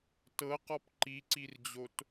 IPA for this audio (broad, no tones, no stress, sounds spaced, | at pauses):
t ɤ q ɔ p ǃ i ǀ i r d͡ʑ o t